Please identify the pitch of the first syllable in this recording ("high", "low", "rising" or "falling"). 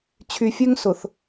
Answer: low